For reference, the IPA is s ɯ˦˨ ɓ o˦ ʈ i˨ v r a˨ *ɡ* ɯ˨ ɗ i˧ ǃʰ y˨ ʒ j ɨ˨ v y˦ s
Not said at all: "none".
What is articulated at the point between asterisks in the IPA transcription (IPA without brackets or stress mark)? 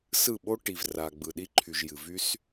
ɡ͡b